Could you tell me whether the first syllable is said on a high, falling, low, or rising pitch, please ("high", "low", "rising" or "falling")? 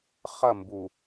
falling